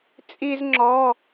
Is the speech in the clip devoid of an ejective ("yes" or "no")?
no